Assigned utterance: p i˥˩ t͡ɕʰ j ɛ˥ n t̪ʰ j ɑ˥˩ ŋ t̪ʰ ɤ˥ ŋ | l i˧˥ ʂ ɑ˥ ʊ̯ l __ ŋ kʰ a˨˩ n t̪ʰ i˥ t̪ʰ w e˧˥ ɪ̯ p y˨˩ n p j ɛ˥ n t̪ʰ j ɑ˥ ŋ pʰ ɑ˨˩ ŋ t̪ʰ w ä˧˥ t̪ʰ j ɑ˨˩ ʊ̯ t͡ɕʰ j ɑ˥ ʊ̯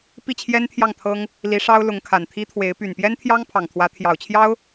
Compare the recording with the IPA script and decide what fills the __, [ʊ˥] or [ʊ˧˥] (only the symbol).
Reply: ʊ˧˥